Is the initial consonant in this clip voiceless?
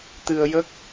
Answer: yes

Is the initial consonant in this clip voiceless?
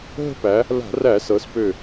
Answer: no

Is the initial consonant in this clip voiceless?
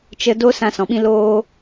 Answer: yes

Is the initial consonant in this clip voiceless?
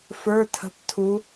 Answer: yes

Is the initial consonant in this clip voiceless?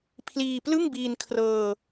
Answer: yes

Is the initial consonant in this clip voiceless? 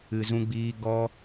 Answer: no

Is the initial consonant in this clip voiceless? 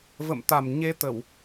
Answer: no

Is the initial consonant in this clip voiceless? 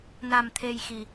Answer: no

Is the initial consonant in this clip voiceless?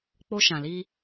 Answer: yes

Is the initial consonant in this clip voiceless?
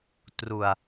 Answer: yes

